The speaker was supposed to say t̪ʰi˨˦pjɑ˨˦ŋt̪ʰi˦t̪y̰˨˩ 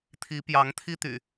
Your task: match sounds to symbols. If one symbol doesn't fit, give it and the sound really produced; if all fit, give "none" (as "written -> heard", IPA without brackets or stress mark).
none